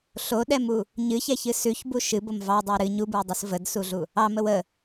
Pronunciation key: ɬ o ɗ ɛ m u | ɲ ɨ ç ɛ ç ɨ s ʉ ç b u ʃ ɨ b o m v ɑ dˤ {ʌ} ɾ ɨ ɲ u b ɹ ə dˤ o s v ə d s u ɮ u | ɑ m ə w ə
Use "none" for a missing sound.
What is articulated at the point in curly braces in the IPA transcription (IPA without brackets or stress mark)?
ɑ